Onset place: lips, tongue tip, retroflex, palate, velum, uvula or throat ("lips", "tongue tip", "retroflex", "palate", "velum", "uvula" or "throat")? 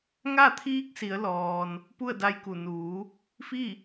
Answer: velum